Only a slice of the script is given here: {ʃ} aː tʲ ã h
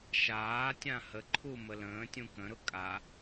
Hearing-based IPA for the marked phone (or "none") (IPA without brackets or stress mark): ʃ